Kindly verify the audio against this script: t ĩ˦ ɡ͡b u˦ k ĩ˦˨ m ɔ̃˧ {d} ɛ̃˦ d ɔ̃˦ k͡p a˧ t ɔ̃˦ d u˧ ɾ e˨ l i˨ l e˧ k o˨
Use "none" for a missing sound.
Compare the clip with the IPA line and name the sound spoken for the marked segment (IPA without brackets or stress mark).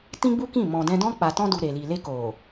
d